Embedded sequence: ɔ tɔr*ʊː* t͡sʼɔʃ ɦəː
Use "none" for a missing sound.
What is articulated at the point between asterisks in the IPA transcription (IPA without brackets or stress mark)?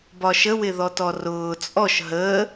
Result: ʊː